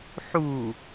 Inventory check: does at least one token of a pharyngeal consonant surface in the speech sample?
yes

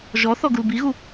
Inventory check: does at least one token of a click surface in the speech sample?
no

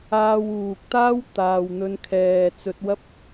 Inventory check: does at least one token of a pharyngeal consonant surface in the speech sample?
no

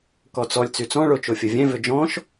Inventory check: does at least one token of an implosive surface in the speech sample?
no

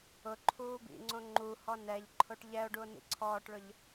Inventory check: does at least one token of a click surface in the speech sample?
yes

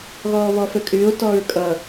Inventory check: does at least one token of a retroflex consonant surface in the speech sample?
no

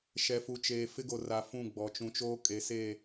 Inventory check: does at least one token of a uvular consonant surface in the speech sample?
no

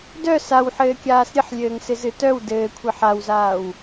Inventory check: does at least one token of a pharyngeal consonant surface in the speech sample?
yes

